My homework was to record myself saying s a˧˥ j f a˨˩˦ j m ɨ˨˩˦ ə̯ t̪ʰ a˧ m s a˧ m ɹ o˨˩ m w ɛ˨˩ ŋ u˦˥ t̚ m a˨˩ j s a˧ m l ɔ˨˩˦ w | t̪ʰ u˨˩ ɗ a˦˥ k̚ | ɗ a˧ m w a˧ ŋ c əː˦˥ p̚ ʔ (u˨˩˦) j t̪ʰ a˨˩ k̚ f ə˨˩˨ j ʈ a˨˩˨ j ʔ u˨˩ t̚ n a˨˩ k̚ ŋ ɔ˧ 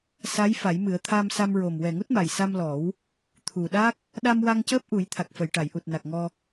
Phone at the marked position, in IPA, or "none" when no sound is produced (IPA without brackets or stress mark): u˨˩˦